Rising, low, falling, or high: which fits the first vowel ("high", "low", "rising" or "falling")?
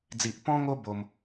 low